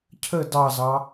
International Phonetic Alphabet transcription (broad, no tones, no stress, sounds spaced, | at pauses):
cʰ ə d ɑ z ɑ